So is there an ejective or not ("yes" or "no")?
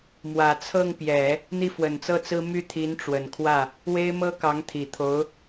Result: no